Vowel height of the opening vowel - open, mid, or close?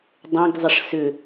mid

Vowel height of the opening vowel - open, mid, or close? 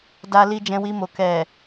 open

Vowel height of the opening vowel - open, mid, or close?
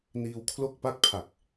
close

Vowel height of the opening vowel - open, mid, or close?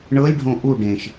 mid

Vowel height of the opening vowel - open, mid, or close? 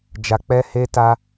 open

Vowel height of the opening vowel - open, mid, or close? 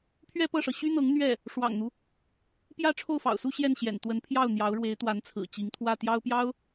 mid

